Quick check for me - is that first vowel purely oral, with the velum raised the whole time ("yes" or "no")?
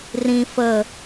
no